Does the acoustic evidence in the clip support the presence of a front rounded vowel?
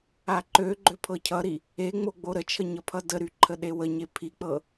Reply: yes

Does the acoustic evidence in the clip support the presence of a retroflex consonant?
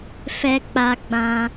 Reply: no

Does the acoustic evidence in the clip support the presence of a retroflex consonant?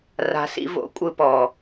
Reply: no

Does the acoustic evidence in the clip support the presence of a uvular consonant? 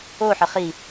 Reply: yes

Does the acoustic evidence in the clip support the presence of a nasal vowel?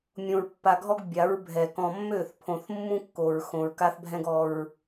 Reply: yes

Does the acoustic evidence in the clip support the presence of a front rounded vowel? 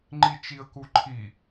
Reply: no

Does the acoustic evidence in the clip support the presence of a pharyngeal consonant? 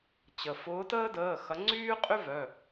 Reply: no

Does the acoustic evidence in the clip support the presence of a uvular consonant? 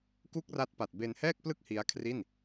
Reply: no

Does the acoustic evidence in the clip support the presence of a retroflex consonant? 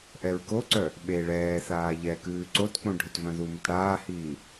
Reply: yes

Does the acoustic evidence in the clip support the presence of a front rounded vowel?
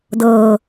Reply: no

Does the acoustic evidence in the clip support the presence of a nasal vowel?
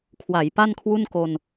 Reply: no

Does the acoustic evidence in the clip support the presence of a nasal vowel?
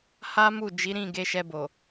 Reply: yes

